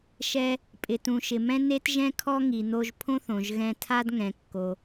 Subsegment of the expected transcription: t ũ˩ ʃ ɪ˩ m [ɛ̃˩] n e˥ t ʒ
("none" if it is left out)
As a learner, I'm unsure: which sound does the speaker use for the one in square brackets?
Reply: ɛ̃˥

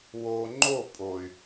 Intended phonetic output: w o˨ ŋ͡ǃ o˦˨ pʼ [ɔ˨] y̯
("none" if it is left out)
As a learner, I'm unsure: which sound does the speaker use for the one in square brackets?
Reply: o˨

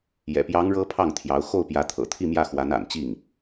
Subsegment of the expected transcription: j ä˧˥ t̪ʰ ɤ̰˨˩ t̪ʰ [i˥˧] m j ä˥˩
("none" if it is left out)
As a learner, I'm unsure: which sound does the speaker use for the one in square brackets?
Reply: i˥˧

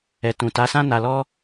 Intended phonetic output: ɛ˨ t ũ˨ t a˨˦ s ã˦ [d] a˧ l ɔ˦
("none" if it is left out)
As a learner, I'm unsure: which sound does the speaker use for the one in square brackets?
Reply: n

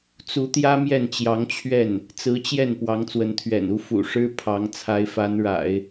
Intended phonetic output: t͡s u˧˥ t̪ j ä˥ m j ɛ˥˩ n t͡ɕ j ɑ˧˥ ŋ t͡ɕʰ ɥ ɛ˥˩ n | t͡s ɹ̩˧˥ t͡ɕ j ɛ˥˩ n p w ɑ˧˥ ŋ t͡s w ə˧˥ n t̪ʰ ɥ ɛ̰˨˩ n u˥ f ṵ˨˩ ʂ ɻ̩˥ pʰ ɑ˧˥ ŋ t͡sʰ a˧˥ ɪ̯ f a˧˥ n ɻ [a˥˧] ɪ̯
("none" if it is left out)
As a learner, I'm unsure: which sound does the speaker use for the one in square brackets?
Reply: a̰˨˩˦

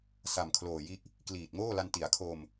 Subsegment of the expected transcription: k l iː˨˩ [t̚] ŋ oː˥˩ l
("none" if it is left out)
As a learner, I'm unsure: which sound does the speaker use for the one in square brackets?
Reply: t̚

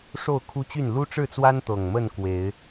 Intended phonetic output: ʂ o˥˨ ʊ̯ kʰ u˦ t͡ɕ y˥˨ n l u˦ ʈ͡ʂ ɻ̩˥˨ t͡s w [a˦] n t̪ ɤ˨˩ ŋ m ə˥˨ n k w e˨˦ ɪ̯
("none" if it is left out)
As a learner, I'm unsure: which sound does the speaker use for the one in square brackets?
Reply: a˦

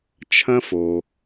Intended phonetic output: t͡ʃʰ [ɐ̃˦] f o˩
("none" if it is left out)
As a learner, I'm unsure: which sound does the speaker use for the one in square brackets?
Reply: ɐ̃˦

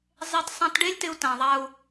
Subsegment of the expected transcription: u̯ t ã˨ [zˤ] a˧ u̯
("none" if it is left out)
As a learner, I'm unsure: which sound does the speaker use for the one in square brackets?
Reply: ðˤ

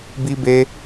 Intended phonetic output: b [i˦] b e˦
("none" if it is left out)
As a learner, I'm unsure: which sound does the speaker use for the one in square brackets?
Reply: i˦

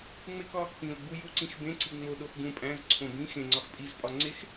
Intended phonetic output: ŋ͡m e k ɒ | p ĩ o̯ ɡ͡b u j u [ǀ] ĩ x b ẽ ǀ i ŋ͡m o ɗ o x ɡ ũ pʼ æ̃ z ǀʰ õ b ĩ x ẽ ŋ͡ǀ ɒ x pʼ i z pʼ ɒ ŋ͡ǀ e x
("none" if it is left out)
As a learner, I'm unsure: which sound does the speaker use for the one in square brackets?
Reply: ǀ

